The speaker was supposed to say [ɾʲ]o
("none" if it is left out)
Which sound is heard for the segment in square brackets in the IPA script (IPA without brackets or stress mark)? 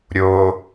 ɾʲ